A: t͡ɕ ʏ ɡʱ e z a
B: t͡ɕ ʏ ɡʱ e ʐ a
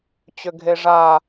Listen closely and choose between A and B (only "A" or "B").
B